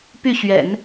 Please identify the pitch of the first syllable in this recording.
falling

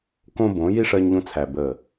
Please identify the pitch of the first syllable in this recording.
high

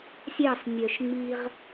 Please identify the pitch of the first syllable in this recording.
falling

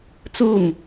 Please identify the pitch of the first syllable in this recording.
falling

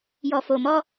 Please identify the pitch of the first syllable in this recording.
low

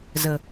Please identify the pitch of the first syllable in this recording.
low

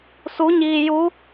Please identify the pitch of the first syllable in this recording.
rising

